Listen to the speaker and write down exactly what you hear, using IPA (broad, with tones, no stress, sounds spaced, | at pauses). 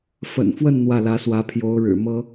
f ə̰˨˩ n f w ə˥˧ n n̪ w ä˥˩ l ä˧˥ s w ä˧˥ pʰ j o˧˥ ʊ̯ ɻ ɻ̩˨˩ m ɤ˥